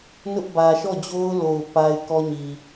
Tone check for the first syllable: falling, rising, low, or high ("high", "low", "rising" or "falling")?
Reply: high